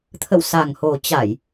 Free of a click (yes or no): yes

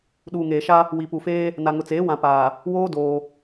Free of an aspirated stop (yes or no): yes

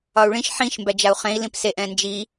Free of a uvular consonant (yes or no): no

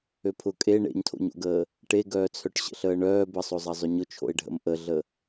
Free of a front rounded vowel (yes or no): no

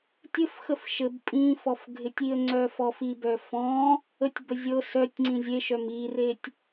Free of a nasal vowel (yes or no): no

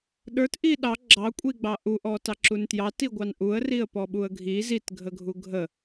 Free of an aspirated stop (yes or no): yes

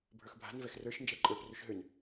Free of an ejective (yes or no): no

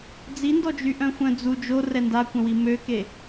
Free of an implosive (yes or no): yes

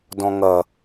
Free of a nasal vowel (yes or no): no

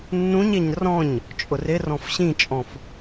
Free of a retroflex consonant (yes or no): yes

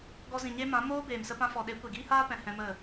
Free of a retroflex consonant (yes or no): yes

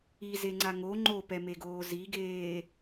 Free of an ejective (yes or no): yes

